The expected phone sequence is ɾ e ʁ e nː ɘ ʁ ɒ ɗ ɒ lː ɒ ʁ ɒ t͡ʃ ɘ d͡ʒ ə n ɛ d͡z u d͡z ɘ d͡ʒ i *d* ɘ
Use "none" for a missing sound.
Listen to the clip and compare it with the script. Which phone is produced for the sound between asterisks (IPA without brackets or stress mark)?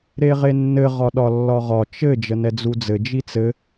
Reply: t͡s